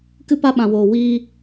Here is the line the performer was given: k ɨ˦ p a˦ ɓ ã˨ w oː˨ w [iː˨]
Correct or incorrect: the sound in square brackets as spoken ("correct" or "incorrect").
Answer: incorrect